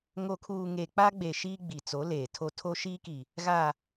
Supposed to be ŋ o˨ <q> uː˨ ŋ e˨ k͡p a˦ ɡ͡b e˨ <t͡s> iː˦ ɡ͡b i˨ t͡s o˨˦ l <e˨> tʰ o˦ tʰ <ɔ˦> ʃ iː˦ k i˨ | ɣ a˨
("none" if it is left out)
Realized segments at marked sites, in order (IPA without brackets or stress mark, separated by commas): kʰ, ʃ, eː˨, o˦